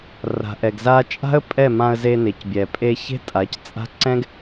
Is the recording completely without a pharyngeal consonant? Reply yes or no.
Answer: yes